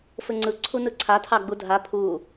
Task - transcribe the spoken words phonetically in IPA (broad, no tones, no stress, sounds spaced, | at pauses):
f ɘ ŋ͡ǀ ɯ ǀʰ u n ɯ ǀʰ a tʰ ɑ ɡ͡b u dʱ a pʰ u